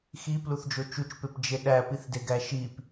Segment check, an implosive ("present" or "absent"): present